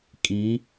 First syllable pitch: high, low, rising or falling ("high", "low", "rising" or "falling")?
rising